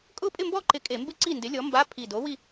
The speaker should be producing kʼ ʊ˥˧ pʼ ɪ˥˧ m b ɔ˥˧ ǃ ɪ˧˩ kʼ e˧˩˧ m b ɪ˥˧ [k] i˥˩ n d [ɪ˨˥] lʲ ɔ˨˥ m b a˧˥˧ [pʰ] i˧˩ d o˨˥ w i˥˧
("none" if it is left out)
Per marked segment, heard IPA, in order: ǀ, ɪ˨˥, pʰ

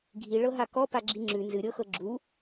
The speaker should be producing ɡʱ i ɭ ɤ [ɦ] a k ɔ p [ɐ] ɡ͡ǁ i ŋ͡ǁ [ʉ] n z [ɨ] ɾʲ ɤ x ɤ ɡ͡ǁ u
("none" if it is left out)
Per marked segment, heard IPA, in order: ɦ, a, ʉ, ɨ

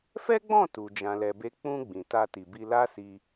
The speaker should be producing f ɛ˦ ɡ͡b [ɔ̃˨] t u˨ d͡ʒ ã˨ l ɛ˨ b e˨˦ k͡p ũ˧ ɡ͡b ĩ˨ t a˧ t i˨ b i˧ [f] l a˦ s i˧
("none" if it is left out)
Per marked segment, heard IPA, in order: ɔ̃˦˨, none

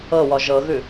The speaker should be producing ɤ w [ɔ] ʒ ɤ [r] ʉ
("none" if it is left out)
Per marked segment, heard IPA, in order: ɔ, ɣ

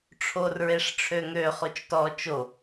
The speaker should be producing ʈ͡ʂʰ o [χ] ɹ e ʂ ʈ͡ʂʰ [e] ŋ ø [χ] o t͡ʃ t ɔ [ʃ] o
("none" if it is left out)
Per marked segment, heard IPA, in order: r, ø, χ, t͡ʃ

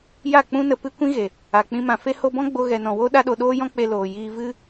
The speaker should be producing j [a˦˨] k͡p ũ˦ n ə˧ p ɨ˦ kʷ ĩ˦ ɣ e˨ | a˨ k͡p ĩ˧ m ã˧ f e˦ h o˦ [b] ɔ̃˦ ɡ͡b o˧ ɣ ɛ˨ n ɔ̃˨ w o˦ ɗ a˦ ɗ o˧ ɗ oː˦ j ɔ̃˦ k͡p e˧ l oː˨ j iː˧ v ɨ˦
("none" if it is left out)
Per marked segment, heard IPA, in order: a˦˨, b

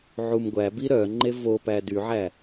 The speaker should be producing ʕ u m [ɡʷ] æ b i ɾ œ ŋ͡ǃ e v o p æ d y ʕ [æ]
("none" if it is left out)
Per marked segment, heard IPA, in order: ɡʷ, æ

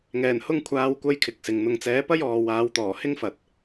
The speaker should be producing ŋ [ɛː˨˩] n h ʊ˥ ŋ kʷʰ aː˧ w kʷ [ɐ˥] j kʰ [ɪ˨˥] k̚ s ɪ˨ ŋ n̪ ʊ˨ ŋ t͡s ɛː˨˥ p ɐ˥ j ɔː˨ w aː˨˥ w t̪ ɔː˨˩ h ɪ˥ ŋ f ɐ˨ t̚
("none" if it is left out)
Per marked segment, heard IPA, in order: ɛː˨˩, ɐ˥, ɪ˨˥

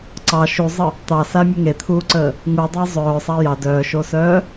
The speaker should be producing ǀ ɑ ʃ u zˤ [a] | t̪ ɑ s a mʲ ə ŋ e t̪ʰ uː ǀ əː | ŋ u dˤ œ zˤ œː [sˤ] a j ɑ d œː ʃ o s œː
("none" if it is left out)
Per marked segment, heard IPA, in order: ə, sˤ

